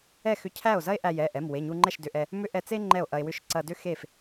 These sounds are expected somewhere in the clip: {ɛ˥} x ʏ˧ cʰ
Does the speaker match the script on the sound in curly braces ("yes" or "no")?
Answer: no